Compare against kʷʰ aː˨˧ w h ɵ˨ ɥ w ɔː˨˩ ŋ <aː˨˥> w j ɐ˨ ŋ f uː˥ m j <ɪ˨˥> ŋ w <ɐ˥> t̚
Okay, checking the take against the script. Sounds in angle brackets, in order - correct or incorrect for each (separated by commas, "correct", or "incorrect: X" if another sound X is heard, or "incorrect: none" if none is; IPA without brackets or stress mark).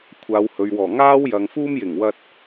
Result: incorrect: aː˥, incorrect: ɪ˨˩, incorrect: ɐ˧